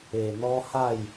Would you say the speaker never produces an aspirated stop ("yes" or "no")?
yes